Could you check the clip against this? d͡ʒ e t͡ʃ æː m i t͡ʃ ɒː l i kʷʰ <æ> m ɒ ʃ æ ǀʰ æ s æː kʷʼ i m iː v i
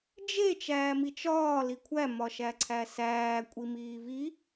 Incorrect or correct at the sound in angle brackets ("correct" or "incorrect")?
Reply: correct